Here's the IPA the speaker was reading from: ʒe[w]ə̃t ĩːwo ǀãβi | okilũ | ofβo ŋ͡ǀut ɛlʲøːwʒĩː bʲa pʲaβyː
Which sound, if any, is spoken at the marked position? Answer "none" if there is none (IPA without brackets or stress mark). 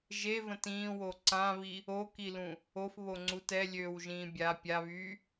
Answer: v